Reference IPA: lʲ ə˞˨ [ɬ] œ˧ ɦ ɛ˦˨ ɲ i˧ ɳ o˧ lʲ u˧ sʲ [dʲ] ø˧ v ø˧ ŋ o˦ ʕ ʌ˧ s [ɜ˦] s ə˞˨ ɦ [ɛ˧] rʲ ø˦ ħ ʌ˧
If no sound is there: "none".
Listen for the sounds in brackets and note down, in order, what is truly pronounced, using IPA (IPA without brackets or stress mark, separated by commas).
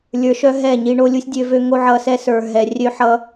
ʃ, dʲ, ɛ˦, ɛ˨